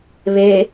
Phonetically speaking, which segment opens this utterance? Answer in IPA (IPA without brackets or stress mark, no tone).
β